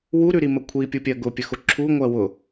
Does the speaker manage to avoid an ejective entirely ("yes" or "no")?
yes